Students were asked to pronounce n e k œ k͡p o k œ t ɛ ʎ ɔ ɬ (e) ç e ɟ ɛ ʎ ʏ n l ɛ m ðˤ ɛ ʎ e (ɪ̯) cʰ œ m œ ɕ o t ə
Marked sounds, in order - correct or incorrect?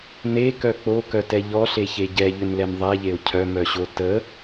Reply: correct, incorrect

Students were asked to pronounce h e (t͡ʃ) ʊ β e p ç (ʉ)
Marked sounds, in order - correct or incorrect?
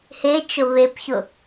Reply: correct, incorrect

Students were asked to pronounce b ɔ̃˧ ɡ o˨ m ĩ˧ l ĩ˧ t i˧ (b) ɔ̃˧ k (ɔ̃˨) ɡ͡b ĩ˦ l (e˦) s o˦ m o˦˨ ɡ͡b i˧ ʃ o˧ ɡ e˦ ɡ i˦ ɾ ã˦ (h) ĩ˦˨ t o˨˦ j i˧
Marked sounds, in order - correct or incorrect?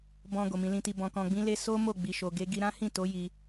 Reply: correct, incorrect, correct, correct

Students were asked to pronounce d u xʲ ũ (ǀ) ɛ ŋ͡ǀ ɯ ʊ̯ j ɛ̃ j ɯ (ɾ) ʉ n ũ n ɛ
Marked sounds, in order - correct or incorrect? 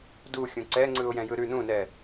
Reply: correct, correct

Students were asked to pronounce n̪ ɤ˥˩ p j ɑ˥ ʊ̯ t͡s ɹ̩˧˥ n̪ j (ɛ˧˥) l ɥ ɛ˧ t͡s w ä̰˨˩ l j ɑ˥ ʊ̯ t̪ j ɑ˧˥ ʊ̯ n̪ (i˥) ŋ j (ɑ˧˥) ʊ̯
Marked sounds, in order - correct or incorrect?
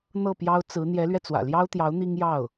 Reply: correct, correct, incorrect

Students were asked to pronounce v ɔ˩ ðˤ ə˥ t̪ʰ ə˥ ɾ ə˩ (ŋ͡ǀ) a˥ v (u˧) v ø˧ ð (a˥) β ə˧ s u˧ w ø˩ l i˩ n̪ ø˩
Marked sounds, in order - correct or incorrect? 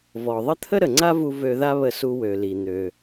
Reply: correct, correct, correct

